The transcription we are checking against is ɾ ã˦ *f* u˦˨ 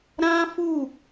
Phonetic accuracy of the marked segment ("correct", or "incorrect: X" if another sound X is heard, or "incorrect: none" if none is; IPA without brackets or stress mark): correct